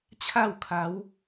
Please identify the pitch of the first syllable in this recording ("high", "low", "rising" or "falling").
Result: falling